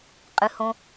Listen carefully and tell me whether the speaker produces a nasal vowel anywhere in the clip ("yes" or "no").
yes